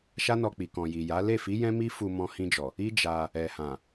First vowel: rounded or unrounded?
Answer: unrounded